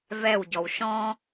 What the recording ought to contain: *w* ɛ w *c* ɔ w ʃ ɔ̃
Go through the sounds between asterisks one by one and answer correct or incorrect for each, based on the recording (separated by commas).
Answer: incorrect, incorrect